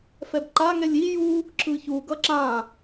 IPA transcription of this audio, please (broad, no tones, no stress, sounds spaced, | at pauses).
f ɛ b ǃ a ŋ ɛ lʲ i j u | ǁ ɯ ç u ɡ ʌ ǁ ã